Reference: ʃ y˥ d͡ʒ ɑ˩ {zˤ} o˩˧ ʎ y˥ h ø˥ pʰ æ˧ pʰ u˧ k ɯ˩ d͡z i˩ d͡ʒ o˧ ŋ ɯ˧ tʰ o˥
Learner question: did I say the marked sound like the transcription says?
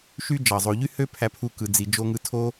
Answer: yes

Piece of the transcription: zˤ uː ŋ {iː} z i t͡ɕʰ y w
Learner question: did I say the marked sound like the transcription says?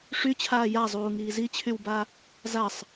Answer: yes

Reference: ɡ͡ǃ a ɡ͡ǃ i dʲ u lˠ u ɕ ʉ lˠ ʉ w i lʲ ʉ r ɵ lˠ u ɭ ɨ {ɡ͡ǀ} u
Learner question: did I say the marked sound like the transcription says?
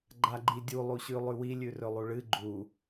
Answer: no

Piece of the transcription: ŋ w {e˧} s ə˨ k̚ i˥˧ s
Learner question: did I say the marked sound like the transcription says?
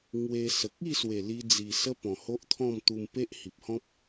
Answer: yes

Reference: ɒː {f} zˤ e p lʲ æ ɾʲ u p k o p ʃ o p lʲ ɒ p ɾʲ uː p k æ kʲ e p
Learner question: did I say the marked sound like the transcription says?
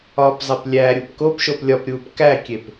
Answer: no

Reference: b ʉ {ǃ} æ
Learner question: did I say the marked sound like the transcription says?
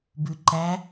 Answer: yes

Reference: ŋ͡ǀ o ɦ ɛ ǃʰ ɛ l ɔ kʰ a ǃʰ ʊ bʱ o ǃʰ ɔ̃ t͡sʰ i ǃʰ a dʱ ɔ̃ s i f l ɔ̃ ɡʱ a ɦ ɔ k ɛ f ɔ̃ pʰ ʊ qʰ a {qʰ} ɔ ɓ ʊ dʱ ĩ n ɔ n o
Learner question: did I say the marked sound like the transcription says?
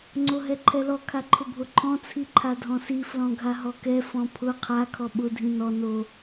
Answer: no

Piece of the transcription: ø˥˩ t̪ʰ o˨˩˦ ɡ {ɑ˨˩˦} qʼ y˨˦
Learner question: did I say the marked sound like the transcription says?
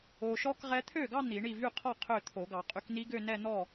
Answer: yes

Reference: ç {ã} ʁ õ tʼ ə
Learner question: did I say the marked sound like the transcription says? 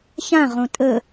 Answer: yes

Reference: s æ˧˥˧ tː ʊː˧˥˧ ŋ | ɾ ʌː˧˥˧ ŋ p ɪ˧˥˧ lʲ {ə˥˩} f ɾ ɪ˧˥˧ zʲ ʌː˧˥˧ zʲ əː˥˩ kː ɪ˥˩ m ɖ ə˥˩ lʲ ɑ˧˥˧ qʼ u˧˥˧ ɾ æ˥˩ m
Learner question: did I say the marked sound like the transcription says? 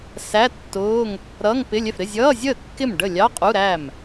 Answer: no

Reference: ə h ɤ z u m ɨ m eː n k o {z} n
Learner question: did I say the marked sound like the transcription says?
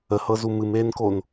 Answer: no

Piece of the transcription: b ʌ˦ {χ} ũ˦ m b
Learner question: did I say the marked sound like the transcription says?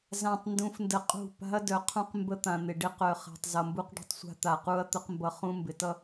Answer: yes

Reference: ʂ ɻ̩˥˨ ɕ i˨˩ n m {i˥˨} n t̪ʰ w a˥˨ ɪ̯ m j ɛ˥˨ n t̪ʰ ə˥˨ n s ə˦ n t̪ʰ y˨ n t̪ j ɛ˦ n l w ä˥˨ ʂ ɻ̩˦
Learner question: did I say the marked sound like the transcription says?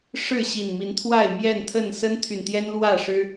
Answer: no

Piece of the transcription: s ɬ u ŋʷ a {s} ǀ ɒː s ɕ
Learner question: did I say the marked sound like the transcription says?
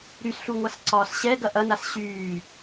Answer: yes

